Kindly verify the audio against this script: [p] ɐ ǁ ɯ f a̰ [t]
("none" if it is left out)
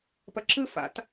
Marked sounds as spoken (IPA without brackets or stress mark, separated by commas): p, t